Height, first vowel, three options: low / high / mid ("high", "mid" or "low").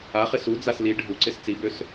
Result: low